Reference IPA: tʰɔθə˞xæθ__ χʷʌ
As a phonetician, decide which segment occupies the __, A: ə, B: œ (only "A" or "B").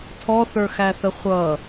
A